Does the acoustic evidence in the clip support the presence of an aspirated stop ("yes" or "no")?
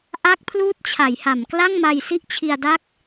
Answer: yes